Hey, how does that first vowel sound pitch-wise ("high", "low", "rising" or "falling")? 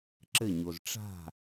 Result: falling